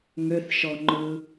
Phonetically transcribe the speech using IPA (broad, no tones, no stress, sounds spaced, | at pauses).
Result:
ŋ ø θ ʃ ɔ ŋ͡ǃ ɯ